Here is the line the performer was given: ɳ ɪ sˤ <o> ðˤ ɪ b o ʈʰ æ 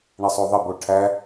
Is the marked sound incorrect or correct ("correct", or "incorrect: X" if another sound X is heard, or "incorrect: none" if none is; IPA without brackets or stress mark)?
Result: correct